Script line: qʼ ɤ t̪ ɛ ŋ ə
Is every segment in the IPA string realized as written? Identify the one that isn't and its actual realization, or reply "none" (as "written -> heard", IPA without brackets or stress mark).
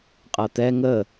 none